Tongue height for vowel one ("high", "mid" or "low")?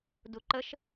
high